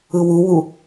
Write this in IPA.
ɯ w u w u

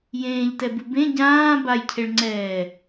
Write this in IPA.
j ẽː ʎ t ɛ b ɨ b ẽ ɟ ãː b a j cʰ e ɭ ŋ͡ǀ ɛː

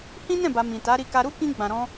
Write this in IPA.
h ĩ˦ n ɛ̃˦˨ b a˨ m ĩ˨ t a˨˦ ɾ i˧ k a˧ ɾ u˦ k ĩ˧ ɡ͡b ã˨ ɾ ɔ̃˧

